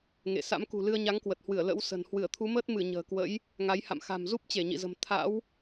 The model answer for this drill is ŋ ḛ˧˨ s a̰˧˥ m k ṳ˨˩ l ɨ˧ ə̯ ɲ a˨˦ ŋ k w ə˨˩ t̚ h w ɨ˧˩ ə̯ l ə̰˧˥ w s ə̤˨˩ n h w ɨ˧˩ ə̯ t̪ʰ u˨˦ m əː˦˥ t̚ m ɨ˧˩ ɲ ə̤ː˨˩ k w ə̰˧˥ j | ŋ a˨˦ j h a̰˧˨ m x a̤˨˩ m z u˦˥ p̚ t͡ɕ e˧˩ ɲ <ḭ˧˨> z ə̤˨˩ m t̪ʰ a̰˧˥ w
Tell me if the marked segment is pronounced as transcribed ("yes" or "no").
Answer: yes